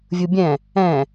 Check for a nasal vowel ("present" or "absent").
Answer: present